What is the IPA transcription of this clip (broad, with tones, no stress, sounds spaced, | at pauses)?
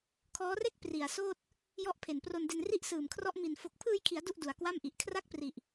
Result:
kʰ ɔː˦˥ r e˥˩ k̚ p r i˨˩ a̯ s oː˥˩ t̚ | j ɔ˦˥ ʔ pʰ e˨˩ n p r o˧ n d e˧ n r i˥˩ ʔ s ɯː˨˩ m kʰ r ɔ˦˥ ʔ m i˨˩ n f o˨˩ k̚ pʰ ɯː˧ j kʰ i˩˦ a̯ d u˥˩ ʔ d u˨˩ a̯ k w a˥˩ m ʔ i˨˩ ʔ kʰ r a˥˩ k̚ p r i˨˩ ʔ